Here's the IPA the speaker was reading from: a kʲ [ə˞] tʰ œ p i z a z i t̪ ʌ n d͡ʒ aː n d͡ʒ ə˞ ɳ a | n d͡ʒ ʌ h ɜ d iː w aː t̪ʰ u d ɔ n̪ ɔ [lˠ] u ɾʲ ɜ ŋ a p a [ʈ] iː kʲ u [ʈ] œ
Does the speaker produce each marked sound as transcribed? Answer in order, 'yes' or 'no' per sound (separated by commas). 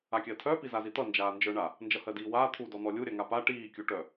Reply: no, no, yes, yes